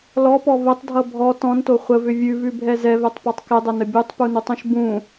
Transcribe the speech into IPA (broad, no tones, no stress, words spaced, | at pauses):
lɔpɔ vətˤdʱʌ bʱɔ tɔ̃nto χʷəvʏ vʲʉvʉbʱɛ zɛvɛtˤpɔtˤ kɪdˤənə bʲutˤpunutˤũʃ bũ